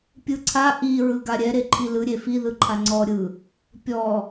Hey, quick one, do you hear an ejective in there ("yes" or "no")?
no